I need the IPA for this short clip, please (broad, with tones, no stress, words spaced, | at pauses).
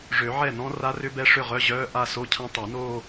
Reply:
ʐø˨˩˦ʕɛ˥˩nɔ̃˦˥ ra˦˥rʏ˦˥bɛ˦˥ ʂʏ˥˩ʁœ˧˥˧ʑœː˧˥˧ʔa˥˧ so˧˥˧cʰã˦˥tˤa˨˩˦noː˥˧